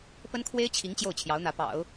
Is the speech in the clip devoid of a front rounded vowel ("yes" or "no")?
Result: yes